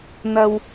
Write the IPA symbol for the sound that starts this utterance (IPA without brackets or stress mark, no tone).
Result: n̪